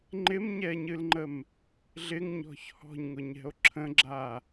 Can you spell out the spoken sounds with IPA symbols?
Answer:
ŋ͡ǃ ɪ m ɲ ɛ ɲ ɨ l ŋ͡ǃ ə m | ɮ ɪ ŋ ɲ ɔ̤ ç h ɔ̤ ɲ ŋ ʊ ɲ ɛ̤ o̯ ǁʰ ə̃ ɡ͡ǁ a

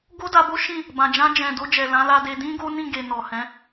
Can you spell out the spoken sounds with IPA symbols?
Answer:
ɡ o˦ d a˧ b o˦ ʃ ĩ˦˨ | b ã˨ d͡ʒ ã˧ d͡ʒ ɛ̃˨ d o˧ d͡ʒ ɛ˨ l ã˨˦ l a˧ d e˧ d ĩ˦ ɡ o˦ n ĩ˦˨ ɡ e˨ n ɔ˨ h ɛ̃˨˦

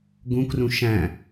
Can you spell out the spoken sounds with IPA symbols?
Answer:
ɡ ũ k r ũ ʃ æ̃

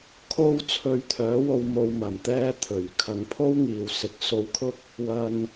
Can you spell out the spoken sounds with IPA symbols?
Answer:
kʰ o˧ w t͡sʰ ɵ˧ ɥ t̪ʰ œː˨˥ w o˧ w m o˧ w m ɐ˨˩ m t̪ ɛː˧ t̪ʰ ɵ˨˩ ɥ kʰ ɐ˨˧ ŋ pʰ o˥ w ŋ iː˨ w s ɪ˨˥ k̚ s o˧ w kʰ ʊ˥ k̚ | w ɐ˧ n

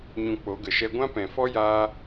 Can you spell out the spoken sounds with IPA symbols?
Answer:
ɲ ũ˧ k͡p o˨˦ ɡ ə˨ ʃ ɛ˦ ɡʷ ã˦ p ɛ̃˨ f ɔ˦ j aː˦

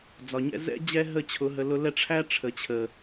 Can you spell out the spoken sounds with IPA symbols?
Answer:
d͡z ɒ˨ ɲ ɛ̰˧ z ɛ̰˦ d͡ʑ ɛ˦ ɦ ə˦˨ t͡ɕʰ ʊ˨˦ ɦ ə˧ l ʊ˧ l ɛ˦ ʈ͡ʂʰ æ˦ ʈ͡ʂʰ ə˨ t͡ɕʰ ə˨

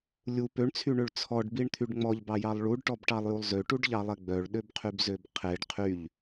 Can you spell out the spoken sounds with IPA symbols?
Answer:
lʲ u p ø ɳ t͡sʰ y ɳ ø ɭ t͡sʰ ɔ ɖ b i ɳ t̪ʰ y ɖ ŋ͡m ɔ ʎ b ɑ j ɑ lˠ ɭ u ɖ ʈ ɔ b ʈ ɑ lˠ j u lˠ z ø ʈ u ɖ ʎ ɑ lˠ ɛ ɡ͡b œ ɭ ɗ ø b qʰ y b z ø b qʰ e ɖ qʰ y ʎ

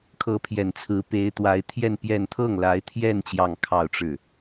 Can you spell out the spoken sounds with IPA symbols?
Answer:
kʰ ɤ˧˥ pʰ j ɛ˨˩ n t͡sʰ ɹ̩˧˥ p e˧˥ ɪ̯ t̪ w a˧˥ ɪ̯ t̪ʰ j ɛ˥˧ n p j ɛ˥˧ n t̪ʰ ɤ˥˩ ŋ l a˧˥ ɪ̯ t̪ʰ j ɛ˥˧ n t͡ɕ j ɑ˥˧ ŋ kʰ ɑ˥˧ ʊ̯ ʈ͡ʂ ɻ̩˥˩

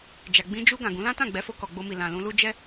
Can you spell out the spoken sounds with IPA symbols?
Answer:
d͡ʒ a˨ ɡ͡b ĩ˧ d͡ʒ u˧ ɡ ã˨ ɡ ũ˨˦ l ã˦ t ã˦˨ ɡ͡b ɛ˨˦ f o˧ k ɔ˨ ɡ͡b o˧ m i˨ l ã˨ l ũ˧ l u˦ d͡ʒ ɛ˦

